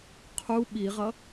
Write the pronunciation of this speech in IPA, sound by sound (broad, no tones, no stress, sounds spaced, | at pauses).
qʰ u ɓ i ʁ ʌ